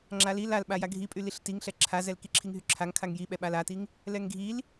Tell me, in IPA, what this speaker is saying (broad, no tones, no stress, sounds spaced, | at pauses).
ŋ͡ǁ a l i l a l ɓ a j a ɡʱ i pʼ y l i ɬ t i ŋ ɬ ɛ ǁʰ a z ɛ l k i ǁʰ i ŋ ɦ y ǁʰ a ŋ kʰ a ŋ j i ɓ ɛ ɓ a l a t i ŋ | l ɛ ŋ ɡʱ i l